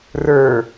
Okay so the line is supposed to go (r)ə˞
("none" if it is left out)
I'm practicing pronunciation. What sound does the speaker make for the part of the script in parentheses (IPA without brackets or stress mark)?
r